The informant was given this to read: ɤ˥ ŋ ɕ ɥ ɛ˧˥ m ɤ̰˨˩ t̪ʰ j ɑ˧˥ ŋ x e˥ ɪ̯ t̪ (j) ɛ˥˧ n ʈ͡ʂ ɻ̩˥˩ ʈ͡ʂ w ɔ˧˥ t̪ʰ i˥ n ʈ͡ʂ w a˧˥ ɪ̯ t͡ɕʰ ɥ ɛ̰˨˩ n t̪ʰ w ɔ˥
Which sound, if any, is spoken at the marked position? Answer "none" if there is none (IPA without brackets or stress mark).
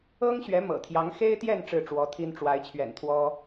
j